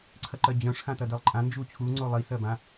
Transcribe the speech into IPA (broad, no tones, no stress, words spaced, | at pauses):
ǀʰɐǃɜd͡ʑœ̃ʂ xãtɐdɜlˠǃʼã nd͡ʒut͡ɕʰu ŋ͡ǀolˠi sɜbã